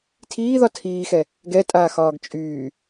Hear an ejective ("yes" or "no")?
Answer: yes